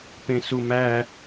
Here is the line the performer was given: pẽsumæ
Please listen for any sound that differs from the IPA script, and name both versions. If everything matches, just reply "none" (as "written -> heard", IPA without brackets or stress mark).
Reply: none